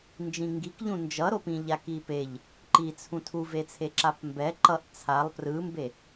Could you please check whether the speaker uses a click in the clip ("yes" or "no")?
yes